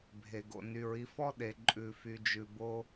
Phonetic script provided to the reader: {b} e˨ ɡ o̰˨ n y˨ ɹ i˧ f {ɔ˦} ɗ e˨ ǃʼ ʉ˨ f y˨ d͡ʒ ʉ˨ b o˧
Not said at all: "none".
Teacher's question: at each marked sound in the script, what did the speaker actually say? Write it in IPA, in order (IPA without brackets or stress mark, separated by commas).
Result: bʱ, ɔ˦